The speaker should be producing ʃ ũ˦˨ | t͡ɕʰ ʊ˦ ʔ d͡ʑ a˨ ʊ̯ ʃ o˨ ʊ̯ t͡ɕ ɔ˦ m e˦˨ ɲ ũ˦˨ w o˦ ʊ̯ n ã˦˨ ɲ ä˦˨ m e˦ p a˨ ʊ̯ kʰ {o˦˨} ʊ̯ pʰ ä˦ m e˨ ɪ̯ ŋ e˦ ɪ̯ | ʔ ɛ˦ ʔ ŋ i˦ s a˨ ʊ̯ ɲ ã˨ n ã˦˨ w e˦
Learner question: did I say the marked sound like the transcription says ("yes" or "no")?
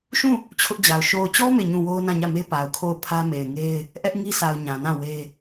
yes